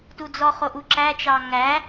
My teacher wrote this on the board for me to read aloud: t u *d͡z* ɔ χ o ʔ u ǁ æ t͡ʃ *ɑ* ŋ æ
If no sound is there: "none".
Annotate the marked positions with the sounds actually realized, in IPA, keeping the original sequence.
d͡z, ɑ

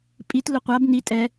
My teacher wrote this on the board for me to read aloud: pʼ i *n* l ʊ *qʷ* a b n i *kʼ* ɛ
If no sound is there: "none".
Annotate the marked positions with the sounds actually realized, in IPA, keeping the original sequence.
t, qʷ, tʼ

